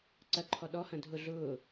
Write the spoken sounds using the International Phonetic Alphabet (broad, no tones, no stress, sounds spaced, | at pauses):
ǀ ɐ ǃʰ ɔ ɗ ɔ h ɐ̃ dʱ ʊ ɮ ʊː